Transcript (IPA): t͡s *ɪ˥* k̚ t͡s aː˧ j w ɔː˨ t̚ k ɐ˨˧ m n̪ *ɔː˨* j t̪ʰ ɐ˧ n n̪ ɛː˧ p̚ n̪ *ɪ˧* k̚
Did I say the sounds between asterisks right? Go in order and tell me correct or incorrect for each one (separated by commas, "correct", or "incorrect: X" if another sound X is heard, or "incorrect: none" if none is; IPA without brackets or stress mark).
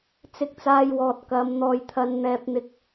incorrect: ɪ˧, correct, correct